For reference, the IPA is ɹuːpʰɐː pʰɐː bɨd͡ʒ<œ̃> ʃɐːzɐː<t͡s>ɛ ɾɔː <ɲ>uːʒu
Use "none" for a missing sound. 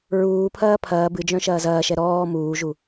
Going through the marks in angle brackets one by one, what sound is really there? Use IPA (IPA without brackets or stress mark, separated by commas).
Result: œ̃, ʃ, m